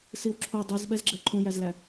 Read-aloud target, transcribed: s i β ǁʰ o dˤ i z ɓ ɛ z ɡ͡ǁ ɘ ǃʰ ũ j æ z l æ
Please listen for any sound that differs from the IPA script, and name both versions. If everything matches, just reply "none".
β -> w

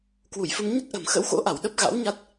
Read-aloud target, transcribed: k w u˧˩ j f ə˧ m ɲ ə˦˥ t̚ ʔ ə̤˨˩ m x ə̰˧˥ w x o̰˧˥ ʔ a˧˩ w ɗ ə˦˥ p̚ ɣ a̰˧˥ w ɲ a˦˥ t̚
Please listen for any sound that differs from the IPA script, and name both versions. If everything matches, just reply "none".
none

